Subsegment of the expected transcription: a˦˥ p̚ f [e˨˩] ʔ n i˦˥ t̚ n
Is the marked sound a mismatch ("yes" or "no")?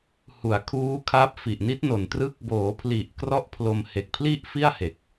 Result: yes